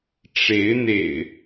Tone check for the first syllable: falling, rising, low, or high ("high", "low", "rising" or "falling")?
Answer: rising